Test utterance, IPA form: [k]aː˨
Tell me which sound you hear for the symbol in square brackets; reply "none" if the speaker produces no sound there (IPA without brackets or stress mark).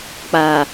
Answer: k͡p